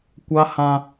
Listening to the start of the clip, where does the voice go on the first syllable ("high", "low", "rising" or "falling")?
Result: high